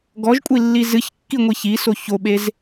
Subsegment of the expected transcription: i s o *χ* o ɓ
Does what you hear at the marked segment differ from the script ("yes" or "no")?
yes